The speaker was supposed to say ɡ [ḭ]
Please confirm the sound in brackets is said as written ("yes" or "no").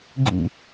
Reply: yes